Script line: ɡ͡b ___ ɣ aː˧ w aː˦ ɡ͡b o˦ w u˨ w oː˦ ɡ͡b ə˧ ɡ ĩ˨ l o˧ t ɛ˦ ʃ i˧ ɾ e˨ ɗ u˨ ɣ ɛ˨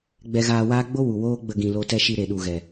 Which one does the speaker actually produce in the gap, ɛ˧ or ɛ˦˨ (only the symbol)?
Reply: ɛ˧